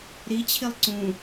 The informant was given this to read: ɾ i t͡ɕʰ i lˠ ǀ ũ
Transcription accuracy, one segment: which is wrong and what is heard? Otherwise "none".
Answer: none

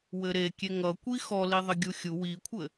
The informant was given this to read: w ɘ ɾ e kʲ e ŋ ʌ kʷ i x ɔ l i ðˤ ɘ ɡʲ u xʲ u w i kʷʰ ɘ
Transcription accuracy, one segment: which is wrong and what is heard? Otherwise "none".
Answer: none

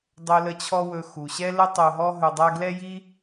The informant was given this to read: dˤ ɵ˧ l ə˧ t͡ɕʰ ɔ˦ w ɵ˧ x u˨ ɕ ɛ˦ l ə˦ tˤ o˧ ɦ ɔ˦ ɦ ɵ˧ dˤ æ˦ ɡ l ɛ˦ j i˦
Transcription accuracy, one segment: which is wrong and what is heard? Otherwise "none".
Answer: none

